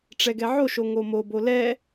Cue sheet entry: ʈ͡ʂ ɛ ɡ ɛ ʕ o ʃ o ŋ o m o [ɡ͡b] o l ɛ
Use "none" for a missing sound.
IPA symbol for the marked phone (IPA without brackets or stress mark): b